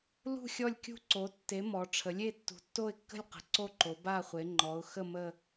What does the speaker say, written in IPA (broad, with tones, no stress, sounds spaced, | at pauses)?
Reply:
l ṳ˦˨ xʲ ɔ˦˨ lʲ kʲ ṳ˦˨ ǀ o˩˧ tː e˩˧ m ɔ˩˧ ʈ͡ʂʰ ə˩˧ lʲ e˦˨ tː ṳ˩˧ tː o˦˨ ɪ̯ kː ə̤˦˨ lʲ q ə̤˩˧ ǀ o˦˨ ǃ o˩˧ b a˦˨ χʷ e˩˧ ŋ͡ǃ ɔ˩˧ ʊ̯ x ə˦˨ m ə˦˨